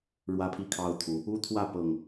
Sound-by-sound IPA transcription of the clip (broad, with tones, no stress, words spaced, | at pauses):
ɻwä˦pʰi˥˨kʰɑ˦ʊ̯t̪ʰu˨˦ | u˦t̪ʰwä˥˨ pɤ˨˩ŋ